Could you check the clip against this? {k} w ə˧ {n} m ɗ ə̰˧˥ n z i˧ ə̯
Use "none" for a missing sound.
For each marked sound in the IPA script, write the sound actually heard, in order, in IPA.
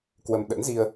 k, none

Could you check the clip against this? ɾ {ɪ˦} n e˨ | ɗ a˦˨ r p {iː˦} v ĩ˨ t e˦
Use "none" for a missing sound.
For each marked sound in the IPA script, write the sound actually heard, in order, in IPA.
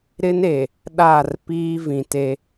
ɪ˦, iː˦

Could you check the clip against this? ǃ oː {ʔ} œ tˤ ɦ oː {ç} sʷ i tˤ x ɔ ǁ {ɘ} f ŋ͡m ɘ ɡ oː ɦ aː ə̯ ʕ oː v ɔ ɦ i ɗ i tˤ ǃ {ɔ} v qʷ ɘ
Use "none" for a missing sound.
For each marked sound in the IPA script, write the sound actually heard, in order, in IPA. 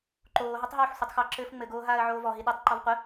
ɦ, ħ, ɘː, ɔ

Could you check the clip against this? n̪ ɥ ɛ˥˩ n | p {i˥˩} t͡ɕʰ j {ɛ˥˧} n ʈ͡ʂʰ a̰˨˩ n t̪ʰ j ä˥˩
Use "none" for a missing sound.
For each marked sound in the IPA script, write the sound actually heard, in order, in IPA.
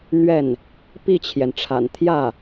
i˥˩, ɛ˩

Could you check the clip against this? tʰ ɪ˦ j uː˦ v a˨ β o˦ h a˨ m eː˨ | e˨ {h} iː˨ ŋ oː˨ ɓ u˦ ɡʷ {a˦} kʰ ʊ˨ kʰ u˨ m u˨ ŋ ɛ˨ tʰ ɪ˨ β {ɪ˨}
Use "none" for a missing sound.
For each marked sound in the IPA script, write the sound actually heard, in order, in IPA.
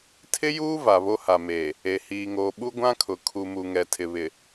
h, ã˦, ɪ˨

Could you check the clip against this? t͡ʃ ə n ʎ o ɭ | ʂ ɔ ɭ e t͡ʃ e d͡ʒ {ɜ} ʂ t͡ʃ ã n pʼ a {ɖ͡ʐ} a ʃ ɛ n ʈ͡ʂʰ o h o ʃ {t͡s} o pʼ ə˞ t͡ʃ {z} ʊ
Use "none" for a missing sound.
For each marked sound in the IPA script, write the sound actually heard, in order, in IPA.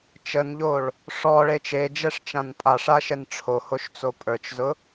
ɛ, ʂ, t͡s, z

